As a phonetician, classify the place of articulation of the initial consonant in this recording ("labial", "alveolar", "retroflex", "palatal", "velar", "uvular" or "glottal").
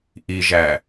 glottal